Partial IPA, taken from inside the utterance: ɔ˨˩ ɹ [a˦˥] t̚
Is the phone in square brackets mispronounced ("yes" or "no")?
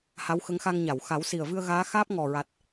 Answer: yes